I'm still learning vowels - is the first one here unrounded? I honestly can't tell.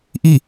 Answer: yes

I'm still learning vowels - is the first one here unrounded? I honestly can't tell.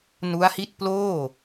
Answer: no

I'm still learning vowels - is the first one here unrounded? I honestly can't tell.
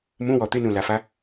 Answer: no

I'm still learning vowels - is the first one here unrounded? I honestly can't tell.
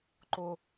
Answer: no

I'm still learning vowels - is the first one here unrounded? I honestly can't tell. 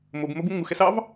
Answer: no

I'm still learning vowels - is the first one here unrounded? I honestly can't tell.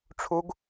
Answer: no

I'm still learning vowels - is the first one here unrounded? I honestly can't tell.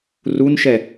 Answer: no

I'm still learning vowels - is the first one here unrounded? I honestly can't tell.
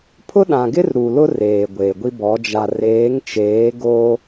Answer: no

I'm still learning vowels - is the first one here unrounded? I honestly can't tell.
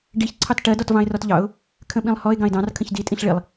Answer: yes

